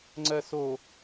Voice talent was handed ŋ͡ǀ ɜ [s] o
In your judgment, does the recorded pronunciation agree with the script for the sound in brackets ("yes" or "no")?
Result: yes